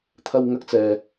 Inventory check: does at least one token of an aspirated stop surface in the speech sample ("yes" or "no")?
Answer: yes